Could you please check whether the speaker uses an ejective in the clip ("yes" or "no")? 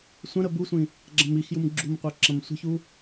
no